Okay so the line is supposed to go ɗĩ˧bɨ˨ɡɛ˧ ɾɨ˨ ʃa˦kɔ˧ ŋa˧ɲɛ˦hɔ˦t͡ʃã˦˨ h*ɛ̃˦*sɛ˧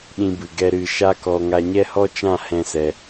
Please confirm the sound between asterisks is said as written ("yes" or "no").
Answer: yes